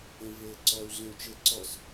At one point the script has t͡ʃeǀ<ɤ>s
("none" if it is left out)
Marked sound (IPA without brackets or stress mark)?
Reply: ɔ